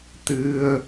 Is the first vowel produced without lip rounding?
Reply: yes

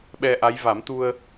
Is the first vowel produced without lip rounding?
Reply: yes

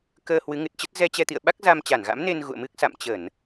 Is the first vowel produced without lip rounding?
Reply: yes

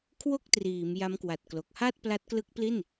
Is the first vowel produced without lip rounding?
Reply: no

